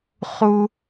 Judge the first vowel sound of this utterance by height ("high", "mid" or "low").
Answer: high